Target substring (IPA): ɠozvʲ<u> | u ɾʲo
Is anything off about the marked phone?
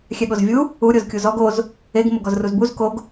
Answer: no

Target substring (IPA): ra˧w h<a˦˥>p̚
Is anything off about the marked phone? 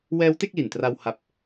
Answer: no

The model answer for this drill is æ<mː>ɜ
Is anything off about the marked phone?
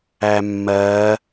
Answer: no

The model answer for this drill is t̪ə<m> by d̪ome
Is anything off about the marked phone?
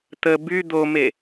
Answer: yes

